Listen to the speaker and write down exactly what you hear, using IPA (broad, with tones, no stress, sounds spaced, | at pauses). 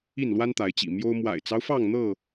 i˥˨ n l w a˦ n t̪ a˨˦ ɪ̯ t͡ɕ ḭ˨˩ m j o˦ ʊ̯ m w a̰˨˩ ɪ̯ t͡s ɑ˦ ʊ̯ f ɑ˥˨ ŋ n̪ ɤ˥˨